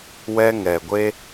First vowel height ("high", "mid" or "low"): mid